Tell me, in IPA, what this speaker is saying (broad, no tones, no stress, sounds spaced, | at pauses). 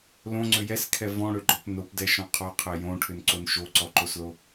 l õ ŋ͡ǀ ʏ j ɛ s kʰ ɛ v ɔ̃ ɽ ʏ ɡ͡ǃ ɔ p n o p d ɛ ʃ ɔ̃ qʰ ɔ qʰ ɛ j õ ʈʰ ʏ n ǀ o n ʃ o ǀ ɔ ǃ o s l o